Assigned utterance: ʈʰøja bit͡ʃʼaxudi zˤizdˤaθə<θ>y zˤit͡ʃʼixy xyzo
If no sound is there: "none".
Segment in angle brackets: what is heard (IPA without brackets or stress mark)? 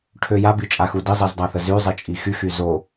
z